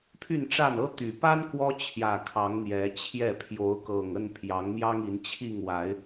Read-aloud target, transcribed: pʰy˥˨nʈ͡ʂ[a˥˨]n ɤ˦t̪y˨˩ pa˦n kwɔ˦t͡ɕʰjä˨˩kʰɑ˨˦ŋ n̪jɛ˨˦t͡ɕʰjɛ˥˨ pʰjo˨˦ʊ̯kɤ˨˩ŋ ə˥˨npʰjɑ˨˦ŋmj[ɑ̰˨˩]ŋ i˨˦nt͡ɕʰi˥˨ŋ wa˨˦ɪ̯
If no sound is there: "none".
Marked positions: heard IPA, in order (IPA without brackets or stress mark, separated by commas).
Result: a˥˨, ɑ˦